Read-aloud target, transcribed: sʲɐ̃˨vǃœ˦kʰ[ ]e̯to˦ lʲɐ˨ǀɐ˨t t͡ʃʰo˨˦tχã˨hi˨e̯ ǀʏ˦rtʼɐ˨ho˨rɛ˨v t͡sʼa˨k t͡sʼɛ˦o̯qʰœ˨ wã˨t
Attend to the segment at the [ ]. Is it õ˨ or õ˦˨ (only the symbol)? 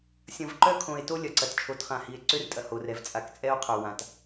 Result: õ˨